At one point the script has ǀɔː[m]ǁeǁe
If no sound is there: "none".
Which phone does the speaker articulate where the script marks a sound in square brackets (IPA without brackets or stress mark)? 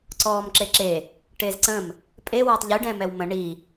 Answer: m